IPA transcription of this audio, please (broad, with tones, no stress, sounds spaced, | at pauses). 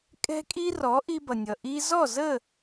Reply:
kʼ ɛ̤˧ kʼ i˧ r ɔ˩˧ ʔ i˧ b ʌ˩ nʲ ʌ˩ ʔ i˧ z ɔ˥˨ z ə˥˨